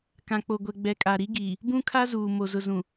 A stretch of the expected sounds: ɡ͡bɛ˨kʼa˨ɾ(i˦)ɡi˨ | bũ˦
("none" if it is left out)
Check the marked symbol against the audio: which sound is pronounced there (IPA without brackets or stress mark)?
i˦